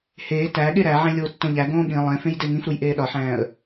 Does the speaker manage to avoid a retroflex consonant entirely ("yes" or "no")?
yes